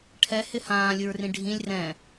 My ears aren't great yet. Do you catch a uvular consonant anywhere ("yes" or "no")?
no